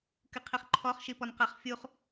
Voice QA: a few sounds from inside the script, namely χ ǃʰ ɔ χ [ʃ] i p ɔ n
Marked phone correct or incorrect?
correct